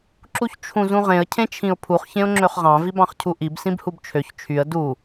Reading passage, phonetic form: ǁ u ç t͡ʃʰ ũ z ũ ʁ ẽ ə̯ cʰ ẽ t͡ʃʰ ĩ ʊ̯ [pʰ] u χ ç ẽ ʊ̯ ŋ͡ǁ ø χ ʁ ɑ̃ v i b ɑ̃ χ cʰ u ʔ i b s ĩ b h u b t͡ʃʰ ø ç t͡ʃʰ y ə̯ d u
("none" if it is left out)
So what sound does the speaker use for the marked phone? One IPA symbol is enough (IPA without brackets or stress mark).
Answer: pʰ